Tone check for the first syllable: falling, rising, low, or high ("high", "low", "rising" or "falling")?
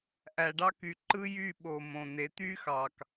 low